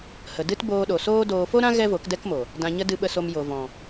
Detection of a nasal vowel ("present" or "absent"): present